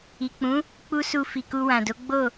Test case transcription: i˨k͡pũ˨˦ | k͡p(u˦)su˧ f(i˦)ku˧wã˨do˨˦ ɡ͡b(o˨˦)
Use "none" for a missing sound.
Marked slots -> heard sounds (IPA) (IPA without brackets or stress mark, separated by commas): u˦, i˨, o˦˨